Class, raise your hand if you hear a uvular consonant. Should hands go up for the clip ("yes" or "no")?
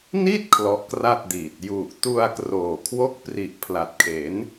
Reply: no